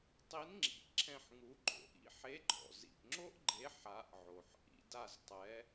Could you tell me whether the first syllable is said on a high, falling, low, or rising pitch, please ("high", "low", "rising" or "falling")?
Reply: rising